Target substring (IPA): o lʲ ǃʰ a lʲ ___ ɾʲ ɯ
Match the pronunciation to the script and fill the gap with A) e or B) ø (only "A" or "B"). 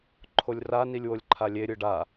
A